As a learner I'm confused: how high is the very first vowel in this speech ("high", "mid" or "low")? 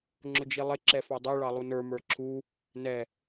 high